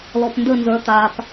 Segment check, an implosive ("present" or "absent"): absent